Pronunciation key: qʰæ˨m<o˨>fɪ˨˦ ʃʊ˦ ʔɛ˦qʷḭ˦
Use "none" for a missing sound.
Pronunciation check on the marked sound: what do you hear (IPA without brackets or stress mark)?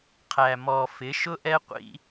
ɔ˨